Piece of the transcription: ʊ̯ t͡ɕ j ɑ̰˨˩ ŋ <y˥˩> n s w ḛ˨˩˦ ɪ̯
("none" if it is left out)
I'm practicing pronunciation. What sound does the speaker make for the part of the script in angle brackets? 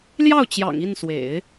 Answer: i˥˩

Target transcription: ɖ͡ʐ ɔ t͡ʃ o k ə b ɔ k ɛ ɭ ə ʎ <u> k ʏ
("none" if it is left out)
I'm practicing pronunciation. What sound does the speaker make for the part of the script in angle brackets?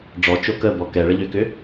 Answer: ʏ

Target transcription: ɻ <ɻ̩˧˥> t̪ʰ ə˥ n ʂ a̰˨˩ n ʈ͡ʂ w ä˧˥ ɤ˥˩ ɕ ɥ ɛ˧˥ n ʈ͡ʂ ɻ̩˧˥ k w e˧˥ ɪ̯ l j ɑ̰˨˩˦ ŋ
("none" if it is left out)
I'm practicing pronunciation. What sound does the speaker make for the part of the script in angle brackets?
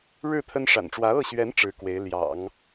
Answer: ɻ̩˥˩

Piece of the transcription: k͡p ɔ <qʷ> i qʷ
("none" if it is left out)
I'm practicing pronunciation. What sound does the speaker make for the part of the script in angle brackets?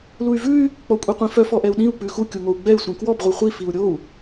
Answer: kʷʼ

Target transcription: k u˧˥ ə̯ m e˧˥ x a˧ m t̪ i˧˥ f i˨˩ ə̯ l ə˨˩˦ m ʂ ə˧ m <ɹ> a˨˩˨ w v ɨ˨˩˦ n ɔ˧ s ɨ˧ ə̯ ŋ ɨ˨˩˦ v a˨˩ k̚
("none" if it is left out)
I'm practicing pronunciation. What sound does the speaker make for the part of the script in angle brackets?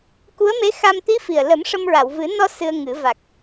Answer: ɹ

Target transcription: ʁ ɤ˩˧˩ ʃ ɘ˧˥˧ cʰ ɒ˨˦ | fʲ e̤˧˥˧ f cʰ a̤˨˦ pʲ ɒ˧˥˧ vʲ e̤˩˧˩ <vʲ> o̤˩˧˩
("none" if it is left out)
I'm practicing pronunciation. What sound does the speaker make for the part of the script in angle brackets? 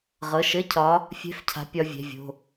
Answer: vʲ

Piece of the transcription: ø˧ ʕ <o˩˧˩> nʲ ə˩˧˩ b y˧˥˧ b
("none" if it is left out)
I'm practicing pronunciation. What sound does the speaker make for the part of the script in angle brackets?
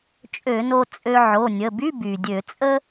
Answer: o˩˧˩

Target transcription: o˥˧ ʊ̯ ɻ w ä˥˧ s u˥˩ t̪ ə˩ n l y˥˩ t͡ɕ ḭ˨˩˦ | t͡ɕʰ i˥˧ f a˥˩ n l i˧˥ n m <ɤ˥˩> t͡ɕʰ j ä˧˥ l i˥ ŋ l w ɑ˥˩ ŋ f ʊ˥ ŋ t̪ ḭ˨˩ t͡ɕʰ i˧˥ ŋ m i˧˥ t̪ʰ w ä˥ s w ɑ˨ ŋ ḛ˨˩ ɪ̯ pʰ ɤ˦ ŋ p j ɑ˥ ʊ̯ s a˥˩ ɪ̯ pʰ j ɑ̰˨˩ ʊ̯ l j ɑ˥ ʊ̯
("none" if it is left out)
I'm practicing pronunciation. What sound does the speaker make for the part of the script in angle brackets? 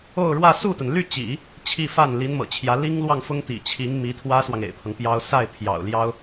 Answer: ɤ̰˨˩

